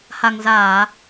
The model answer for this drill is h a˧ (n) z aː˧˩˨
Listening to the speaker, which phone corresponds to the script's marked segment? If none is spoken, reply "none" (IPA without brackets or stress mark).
ŋ